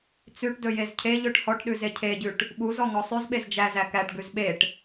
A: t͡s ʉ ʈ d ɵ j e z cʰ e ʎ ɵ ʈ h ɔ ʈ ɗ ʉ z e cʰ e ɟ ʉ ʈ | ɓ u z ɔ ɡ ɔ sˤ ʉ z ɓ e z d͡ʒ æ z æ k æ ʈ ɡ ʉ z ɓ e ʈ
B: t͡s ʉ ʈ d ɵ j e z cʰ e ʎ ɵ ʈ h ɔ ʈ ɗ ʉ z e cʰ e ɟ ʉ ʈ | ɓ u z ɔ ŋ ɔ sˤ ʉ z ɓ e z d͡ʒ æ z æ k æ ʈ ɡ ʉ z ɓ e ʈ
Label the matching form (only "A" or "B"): B